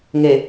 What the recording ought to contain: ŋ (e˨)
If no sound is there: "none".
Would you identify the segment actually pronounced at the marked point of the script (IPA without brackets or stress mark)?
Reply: e˨